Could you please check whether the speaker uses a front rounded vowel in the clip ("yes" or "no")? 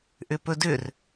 yes